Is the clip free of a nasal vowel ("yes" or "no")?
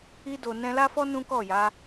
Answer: no